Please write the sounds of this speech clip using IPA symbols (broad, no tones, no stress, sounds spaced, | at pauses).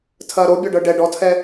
tʰ ɐː ɾ o bʲ ɔ ɖ ɤ ɖ ɛ ɖ ɔ tʰ ɛ